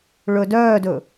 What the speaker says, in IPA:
ɭɵdœːdɵ

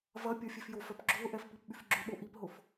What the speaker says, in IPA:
vɐ pʲɔfʲefjofœp ɡ͡ǁʊːʔɛf pipɓyfɡ͡ǁʏɓo ʔipɦʊf

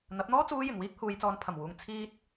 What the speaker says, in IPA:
n̪ɐ˨˥p̚n̪ɔː˥t͡suː˧ jɪ˨ŋwiː˥k̚ huː˨˧jt͡sɔː˨˧npʰɐ˨˩mwuː˨ŋ t͡sʰiː˧t̚

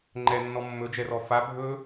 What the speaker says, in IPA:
ŋ͡ǃɛnːɔ mːɵd͡ʒɛrɔ fa bʱɵ

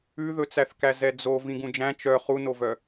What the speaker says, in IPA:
ʉðɵt͡sæθkæ zɛd͡zo vĩɡũd͡ʒæ̃ t͡ʃœ χunovœ

